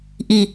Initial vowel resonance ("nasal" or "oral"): oral